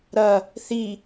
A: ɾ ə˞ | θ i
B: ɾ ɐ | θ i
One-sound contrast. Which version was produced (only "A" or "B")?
B